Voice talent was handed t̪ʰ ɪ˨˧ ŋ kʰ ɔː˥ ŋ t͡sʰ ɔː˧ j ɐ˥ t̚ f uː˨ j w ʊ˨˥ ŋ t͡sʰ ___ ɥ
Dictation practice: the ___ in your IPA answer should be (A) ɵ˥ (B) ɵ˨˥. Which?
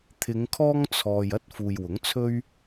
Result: A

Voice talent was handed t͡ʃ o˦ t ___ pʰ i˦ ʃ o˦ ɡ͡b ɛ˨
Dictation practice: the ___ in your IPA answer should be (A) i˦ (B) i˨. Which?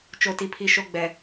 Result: A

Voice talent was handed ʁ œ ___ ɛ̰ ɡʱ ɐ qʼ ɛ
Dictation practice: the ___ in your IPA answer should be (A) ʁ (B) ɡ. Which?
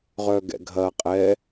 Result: B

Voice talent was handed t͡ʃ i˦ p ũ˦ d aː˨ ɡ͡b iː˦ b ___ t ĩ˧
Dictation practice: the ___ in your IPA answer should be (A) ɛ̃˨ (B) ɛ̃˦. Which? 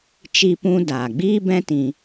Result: B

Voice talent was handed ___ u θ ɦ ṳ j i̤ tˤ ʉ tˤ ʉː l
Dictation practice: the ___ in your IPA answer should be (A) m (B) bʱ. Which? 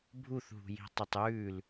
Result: B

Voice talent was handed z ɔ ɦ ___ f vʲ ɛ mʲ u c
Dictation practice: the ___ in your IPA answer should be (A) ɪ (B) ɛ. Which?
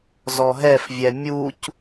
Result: B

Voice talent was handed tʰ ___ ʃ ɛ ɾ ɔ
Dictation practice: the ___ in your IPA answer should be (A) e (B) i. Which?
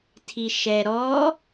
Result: B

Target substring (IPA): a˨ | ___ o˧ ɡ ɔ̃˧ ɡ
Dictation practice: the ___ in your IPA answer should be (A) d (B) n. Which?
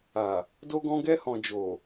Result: A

